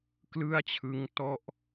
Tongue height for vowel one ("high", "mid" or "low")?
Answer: high